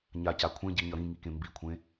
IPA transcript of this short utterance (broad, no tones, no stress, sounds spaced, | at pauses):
ɲ a c a kʷʰ ẽ ɟ i ɲ ʌ ɾ ĩ ŋ i k ẽ m b i kʷʰ ẽ